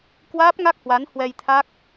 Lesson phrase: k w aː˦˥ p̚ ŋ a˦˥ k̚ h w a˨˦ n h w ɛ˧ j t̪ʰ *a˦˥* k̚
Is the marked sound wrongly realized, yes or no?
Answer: no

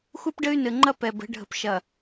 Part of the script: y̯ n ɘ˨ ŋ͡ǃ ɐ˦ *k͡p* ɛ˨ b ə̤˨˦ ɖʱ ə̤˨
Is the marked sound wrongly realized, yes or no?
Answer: yes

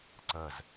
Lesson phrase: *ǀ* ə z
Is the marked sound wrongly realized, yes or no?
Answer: no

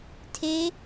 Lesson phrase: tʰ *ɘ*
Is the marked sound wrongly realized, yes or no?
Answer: yes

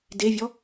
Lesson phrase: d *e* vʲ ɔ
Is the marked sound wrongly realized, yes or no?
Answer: no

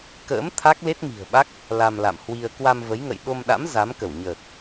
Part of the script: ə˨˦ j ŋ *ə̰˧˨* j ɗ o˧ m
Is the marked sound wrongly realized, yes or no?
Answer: no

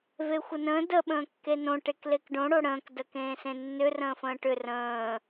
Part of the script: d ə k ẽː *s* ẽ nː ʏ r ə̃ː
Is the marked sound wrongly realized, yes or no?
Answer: no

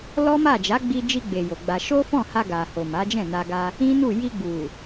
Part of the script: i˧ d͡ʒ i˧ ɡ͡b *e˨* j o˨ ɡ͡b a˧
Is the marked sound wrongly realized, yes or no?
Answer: no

